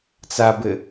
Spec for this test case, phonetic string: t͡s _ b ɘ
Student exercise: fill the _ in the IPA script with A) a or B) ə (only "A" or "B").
A